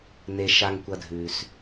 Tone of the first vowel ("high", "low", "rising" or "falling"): low